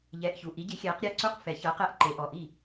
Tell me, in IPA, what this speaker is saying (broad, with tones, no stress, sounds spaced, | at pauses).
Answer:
ʎ ɛː˨˦ ʔ ç u˩˧˩ ʔ i˨˦ ɟ i˨˦ xʲ ɛː˨˦ q ɾʲ a˥˩ ǀ u˥˩ q f ɛ˨˩˦ ç ɤː˨˦ q ɛ˥˩ ʔ ǃ e˨˩˦ ʔ ɔ˩˧˩ ʔ i˥˩